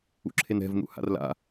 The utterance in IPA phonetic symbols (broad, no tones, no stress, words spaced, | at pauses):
ṵǁʰenɛ̤v nṵha̰rla̰